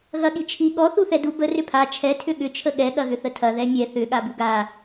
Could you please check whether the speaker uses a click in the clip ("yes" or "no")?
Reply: no